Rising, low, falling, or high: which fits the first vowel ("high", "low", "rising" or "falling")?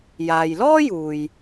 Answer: low